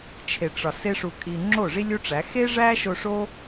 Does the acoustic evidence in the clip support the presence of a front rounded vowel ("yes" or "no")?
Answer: no